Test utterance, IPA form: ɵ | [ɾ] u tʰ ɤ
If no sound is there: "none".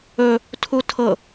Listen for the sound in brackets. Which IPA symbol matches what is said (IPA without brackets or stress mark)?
tʰ